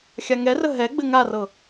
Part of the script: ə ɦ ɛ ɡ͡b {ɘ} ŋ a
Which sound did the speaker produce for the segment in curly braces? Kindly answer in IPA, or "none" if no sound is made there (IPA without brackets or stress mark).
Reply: ɘ